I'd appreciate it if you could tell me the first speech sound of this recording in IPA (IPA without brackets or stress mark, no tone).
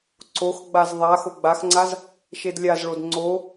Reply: ǀ